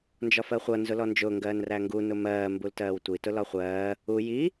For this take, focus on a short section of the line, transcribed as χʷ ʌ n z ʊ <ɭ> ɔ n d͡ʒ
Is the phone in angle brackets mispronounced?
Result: yes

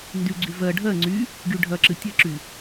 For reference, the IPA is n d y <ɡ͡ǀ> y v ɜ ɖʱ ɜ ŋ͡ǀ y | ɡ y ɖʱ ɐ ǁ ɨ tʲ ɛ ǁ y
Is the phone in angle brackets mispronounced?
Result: no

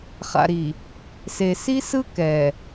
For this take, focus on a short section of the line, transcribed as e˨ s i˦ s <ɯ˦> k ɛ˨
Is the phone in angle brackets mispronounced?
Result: no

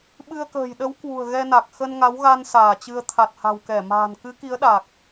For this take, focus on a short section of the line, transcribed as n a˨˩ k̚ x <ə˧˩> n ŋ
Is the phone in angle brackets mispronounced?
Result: yes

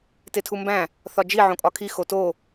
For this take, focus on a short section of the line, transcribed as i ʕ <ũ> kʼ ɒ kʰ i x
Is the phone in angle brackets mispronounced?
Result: yes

